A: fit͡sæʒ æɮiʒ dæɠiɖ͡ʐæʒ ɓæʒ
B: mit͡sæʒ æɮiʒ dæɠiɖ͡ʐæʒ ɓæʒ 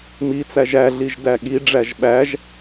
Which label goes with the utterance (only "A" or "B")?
B